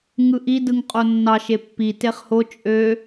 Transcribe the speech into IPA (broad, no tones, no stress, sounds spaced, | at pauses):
ŋ ɯ ʔ i d ɯ ŋ qʼ o nː ɑ ʃ e pː i t e χ h o t͡ʃʼ ø